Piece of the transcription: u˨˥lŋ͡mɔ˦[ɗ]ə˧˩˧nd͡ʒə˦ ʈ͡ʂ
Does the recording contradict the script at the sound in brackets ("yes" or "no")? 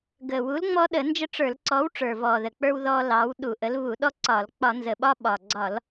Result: no